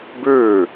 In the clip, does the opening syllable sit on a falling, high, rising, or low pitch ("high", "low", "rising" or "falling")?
falling